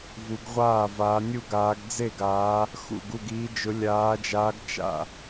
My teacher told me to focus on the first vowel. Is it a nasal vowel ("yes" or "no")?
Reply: no